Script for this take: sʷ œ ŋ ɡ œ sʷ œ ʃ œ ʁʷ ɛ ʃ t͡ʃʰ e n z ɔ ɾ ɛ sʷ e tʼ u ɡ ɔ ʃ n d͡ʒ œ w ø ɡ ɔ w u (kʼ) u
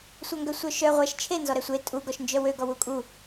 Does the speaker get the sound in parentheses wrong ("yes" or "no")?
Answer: no